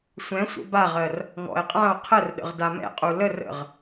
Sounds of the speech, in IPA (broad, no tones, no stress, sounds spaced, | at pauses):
sʷ ɛ̃ sʷ ə̰ b a ʁ ɜ r | ŋ ɔ̰ e̯ qʼ ã o̯ qʰ ə r ɗ ə̰ ʁ d a m ɛ̰ qʼ u l ə r ə̰ ʁ